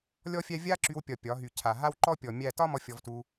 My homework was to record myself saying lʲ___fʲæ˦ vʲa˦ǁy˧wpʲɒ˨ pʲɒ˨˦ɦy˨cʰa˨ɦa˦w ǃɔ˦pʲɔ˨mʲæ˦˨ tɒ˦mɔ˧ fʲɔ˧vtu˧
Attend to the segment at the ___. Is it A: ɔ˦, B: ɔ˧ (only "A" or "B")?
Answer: A